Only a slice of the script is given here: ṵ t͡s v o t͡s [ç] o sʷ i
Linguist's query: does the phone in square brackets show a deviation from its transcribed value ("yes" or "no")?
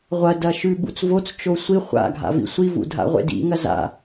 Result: yes